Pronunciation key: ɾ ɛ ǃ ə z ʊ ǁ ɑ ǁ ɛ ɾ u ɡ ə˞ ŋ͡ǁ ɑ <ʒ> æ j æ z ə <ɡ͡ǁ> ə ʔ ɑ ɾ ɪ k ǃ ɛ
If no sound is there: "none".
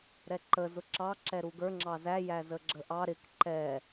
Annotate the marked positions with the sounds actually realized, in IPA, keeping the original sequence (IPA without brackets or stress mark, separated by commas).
z, ɡ͡ǁ